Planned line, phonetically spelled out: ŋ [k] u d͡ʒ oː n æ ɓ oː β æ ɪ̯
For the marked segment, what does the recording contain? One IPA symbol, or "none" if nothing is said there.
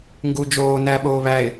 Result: ɡ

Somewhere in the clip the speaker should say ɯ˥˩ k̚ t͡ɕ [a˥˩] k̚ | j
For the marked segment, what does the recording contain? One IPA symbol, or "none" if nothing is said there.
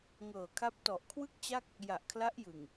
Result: a˥˩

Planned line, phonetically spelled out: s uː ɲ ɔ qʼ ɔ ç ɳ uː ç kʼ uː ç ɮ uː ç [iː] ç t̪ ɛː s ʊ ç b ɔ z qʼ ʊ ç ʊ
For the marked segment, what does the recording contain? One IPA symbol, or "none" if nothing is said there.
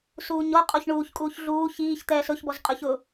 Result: iː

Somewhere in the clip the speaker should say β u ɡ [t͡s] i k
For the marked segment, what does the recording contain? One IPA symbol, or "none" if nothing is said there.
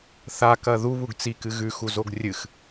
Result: t͡s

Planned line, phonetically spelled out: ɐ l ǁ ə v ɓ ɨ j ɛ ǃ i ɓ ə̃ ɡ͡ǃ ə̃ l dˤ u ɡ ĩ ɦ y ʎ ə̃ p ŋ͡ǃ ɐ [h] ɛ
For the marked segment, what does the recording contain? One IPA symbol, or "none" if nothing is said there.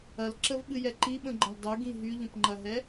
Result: ɦ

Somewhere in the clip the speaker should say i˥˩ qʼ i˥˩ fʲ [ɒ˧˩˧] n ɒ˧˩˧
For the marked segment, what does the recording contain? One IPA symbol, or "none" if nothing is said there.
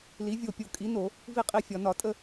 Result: ɒ˧˩˧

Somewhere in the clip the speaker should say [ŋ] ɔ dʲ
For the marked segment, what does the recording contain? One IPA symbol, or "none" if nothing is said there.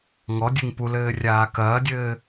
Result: ŋ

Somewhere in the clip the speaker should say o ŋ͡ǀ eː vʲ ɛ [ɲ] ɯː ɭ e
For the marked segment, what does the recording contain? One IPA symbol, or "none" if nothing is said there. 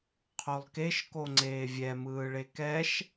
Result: m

